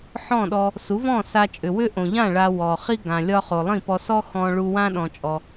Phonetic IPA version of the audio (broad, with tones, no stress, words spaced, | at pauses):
ħɔ̃˥˩ɗɔ˧ | su˩˥vɔ̃˥˩ sa˧t͡ʃʼʏ˩wʏ˥ ʔõ˩ʎã˥˩ ɭa˧ wɔ˩χi˥ ɡã˩lʲɒ˥χo˩ lˠĩ˥˩pɔ˧sɔ˥ xɔ̃˧ɭu˧wã˥ ɗɔ̃˧t͡ʃʼɔ˧